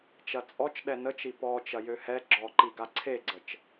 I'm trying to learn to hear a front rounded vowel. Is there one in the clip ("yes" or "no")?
yes